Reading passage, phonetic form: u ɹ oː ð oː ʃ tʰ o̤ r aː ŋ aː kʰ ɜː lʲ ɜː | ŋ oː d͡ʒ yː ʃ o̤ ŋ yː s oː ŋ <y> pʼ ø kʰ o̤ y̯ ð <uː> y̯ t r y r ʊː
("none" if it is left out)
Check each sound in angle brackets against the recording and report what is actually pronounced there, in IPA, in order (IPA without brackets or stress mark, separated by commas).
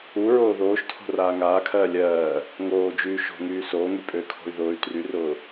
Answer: y, ʊː